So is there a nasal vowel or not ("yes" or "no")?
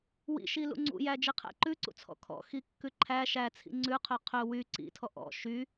no